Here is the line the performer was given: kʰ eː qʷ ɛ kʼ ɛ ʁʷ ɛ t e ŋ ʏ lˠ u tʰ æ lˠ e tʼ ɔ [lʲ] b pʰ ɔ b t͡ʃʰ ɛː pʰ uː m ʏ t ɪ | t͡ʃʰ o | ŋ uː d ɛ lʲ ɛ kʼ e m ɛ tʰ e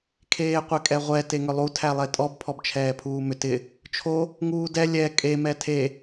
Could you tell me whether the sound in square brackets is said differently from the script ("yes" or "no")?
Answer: yes